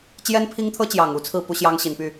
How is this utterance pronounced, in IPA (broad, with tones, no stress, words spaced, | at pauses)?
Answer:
t͡ɕjɛ˥npʰi˥ŋt̪ʰɤ˥t͡ɕjɑ˨˩ŋ u˧˥t͡sʰɹ̩˥˩ pu˥ɕjɑ˥ŋɕi˨˩npy˥˩